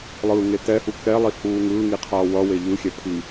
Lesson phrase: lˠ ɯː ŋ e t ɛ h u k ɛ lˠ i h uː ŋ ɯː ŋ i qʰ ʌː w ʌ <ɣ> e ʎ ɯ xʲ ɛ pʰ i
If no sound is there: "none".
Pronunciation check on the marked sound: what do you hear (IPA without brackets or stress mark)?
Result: w